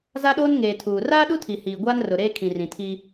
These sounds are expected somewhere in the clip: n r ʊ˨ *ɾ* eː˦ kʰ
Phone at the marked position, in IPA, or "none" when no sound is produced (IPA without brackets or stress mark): ɾ